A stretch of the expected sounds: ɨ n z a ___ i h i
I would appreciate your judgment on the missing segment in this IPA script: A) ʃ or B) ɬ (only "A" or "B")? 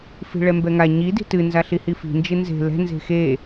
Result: B